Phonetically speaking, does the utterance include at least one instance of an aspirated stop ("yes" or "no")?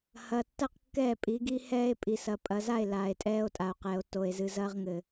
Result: no